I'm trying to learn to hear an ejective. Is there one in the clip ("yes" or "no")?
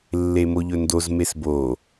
no